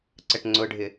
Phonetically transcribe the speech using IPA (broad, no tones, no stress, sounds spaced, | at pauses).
ǀ ə ʈ ŋ͡ǀ ʊ ɖʱ ɪ